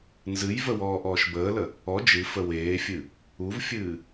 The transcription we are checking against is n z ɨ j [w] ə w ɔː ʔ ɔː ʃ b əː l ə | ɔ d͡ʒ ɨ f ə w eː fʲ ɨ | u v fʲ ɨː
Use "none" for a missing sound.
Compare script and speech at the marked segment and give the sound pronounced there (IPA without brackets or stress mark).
v